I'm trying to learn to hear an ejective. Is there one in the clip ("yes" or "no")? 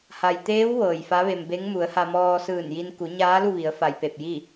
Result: no